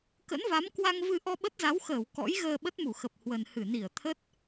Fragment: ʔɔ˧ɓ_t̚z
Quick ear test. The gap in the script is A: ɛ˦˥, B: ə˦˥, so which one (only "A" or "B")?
B